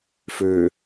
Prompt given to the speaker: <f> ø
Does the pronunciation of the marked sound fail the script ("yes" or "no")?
no